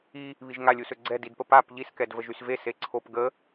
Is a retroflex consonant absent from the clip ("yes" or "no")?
yes